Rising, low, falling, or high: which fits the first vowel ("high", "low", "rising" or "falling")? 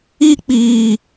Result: high